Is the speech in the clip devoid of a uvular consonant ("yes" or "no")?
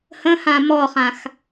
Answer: no